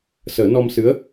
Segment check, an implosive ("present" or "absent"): absent